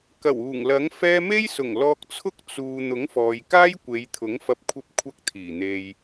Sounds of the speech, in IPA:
k ɐ˨˩ w uː˨˩ ŋ l ɐ˨˥ ŋ f ɛː˥ m e˥ j s ʊ˨˩ ŋ l ɔː˧ k̚ t͡sʰ ʊ˥ k̚ t͡s uː˨ n̪ ʊ˨˥ ŋ f ɔː˨ j k aː˥ j kʷ e˨˧ j t̪ʰ ʊ˨˥ ŋ f ɐ˧ p̚ kʷʰ ɐ˥ p̚ kʷʰ ɐ˥ k̚ t̪ʰ iː˨˩ n̪ e˧ j

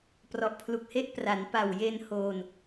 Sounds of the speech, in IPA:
p r ɔ˨˩ ʔ pʰ l u˨˩ k̚ h e˦˥ ʔ p r a˩˦ n p a˨˩ w j e˧ n h oː˧ n

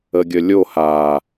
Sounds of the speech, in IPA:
ə ɡʲ ə lʲ o h a

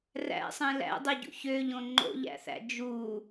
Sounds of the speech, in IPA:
r æ̰ sˤ ẽ l æ̰ dˤ e ɟ ṵ ç ø ʎ õ ŋ͡ǃ o̰ ʎ æ̰ θ æ̰ d͡ʒ u

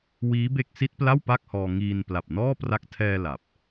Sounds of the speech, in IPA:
w iː˦˥ b e˥˩ k̚ s i˦˥ t̚ p l a˥˩ w p a˥˩ k̚ h ɔː˧ ŋ iː˧ n p l a˨˩ p̚ n ɔː˥˩ p r a˦˥ k̚ tʰ ɛː˧ l a˨˩ p̚

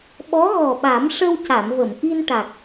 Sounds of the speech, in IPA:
ɓ ɔ˧˥ ɣ ɔ˨˩ ɓ a˨˩˦ m ʂ ə˧ w c a˨˩˨ m v ə˨˩˨ m ʔ i˧ n ʈ a˨˩ k̚

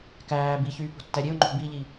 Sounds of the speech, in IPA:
k æː b i ç yː p o̤ tː æ ɾʲ e ʊ̯ ŋ͡ǃ o̤ b i ʎ i

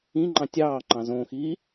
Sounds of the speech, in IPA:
ĩ ŋ͡ǃ ɑ̃ tʲ ɑː ŋ͡ǃ ɑ̃ z õ x iː

